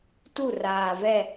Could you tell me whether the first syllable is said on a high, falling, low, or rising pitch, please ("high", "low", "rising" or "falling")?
falling